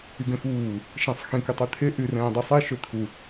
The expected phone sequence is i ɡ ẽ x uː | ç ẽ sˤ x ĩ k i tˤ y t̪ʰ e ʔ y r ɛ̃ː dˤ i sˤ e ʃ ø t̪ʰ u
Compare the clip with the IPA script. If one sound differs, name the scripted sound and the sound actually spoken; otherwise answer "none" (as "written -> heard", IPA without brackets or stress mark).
ç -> ʃ